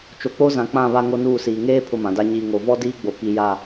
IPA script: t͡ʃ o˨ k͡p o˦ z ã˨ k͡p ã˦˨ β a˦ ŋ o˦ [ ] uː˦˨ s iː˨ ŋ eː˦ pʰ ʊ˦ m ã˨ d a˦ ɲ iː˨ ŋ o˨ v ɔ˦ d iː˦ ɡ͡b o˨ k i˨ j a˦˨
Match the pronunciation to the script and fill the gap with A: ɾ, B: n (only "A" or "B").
B